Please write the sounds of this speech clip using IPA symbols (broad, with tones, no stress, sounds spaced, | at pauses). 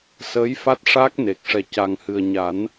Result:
s əː˧˥ j f a˦˥ t̚ ʂ a˦˥ k̚ n e˨˩ k̚ ʂ ɛ˨˩ c a˨˩ ŋ h ɨ˨˩ ə̯ ɲ a˨˩˦ n